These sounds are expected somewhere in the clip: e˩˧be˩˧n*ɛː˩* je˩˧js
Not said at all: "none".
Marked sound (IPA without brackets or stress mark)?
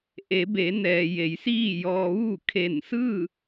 ɛː˩